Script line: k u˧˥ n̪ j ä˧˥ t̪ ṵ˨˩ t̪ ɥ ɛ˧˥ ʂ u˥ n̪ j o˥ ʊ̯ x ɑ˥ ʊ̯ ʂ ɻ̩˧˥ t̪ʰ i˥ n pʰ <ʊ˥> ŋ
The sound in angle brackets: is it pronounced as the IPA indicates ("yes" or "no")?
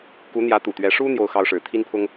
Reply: yes